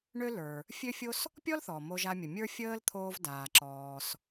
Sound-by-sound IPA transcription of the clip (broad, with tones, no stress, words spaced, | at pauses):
ɳø˥lə˞˩ | fʲø˥fʲo˥s | pʲɔ˥lθɔ˩ mo˧ʒa˧mʲə˩mʲə˞˥ fʲəː˥lt̪ʰoː˧v daː˩ǁɔː˩s